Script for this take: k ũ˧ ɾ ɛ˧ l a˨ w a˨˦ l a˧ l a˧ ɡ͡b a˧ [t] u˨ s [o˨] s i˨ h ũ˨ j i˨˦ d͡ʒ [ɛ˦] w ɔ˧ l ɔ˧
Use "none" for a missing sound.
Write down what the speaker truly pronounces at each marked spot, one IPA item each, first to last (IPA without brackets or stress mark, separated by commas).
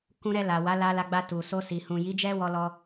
t, o˧, ɛ˦